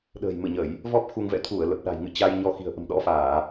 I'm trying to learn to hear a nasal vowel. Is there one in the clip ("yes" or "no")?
no